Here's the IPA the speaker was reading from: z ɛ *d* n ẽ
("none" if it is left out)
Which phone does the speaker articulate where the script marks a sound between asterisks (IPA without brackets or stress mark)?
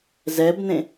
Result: b